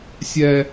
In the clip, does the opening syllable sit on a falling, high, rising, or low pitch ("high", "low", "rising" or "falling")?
high